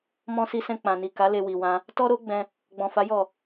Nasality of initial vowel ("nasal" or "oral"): nasal